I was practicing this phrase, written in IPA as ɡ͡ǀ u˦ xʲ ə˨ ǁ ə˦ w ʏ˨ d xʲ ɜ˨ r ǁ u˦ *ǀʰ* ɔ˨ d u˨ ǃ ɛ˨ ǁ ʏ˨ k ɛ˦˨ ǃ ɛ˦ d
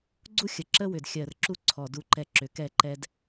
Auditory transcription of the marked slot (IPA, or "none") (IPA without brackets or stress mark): ǀʰ